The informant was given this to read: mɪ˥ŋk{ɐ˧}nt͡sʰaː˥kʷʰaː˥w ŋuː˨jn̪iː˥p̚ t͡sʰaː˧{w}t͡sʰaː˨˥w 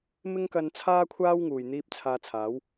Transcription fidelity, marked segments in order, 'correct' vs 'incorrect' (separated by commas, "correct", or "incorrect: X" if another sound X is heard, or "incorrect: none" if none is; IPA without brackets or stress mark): correct, incorrect: none